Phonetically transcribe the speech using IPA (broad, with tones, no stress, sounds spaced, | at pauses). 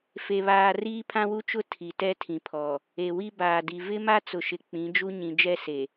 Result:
f e˨ β aː˨ r iː˦ pʰ ã˦ w u˦ t͡ʃ ʊ˦ tʰ i˨ t ɛ˦ tʰ ĩ˨ pʰ ɔ˨ | e˨ w i˦ b aː˨ d i˨ v ɪ˦ m a˦ t͡s ʊ˨ ʃ ɪ˨ k͡p ĩ˨˦ d͡ʒ u˦ ɲ ĩ˨ d͡ʒ ɛ˦ s e˨